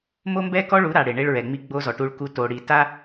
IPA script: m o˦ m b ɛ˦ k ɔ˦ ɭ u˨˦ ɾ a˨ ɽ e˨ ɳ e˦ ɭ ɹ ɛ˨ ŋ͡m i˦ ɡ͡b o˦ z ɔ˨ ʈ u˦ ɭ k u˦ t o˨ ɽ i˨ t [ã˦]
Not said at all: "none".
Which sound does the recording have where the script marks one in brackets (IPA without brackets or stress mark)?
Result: a˦